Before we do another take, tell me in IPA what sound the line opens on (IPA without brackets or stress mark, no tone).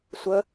sʷ